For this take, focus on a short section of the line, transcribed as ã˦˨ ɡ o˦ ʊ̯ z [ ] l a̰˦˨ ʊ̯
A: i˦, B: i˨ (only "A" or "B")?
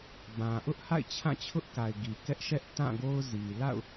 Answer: B